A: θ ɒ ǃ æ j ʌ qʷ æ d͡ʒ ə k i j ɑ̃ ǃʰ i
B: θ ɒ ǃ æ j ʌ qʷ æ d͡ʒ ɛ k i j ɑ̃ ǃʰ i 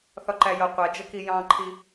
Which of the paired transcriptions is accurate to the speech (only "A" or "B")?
A